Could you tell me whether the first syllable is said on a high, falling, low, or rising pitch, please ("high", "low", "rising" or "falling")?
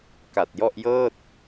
low